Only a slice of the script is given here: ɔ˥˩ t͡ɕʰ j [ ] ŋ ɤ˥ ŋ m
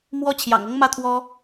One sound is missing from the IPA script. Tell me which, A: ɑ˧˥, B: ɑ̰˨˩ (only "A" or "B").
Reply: B